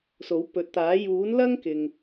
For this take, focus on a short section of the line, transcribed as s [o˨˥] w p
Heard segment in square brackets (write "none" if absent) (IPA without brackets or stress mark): o˨˥